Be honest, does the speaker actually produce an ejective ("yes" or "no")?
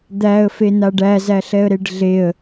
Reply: no